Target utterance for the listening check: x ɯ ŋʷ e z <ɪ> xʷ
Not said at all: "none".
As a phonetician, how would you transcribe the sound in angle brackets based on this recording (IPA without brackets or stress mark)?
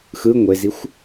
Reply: i